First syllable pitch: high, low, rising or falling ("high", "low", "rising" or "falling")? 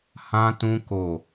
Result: high